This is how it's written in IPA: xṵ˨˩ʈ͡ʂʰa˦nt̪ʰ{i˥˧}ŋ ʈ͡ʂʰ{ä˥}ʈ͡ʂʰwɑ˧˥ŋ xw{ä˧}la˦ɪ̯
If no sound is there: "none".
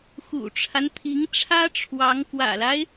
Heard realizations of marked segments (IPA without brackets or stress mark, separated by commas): i˧˥, ä˥, ä̰˨˩